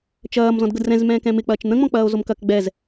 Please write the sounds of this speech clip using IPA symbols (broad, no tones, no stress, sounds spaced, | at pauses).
t͡ʃ ɐː m z ɔ̃ d ɡ ə d r ɛ̃ z m ɛ̃ː k ɛ̃ m ɪ k͡p ɐː t͡ʃ n̪ ə̃ ŋ͡m ɔ̃ k͡p ɐː o̯ z o m k ɐ k ɡ͡b ɛ z